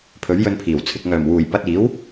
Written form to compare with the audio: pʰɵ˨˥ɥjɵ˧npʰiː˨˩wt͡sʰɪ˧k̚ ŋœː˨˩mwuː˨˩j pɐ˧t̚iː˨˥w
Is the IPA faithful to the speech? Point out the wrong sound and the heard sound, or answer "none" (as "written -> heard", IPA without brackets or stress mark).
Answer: none